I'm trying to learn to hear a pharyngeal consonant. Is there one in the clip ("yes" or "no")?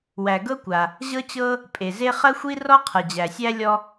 no